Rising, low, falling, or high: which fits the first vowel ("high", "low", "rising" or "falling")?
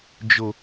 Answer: low